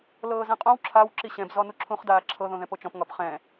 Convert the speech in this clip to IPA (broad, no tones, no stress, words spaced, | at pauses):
lɤːzɛ̃qʼõw ǁʰaw ǁiɕɛ̃b zɔnuǁʰũχ daːǁʰɤ ðõðɛ̃pot͡ʃɔ̃p ŋɒpχɛ̃